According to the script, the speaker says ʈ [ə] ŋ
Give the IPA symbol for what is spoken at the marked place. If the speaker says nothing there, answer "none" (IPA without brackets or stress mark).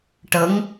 ə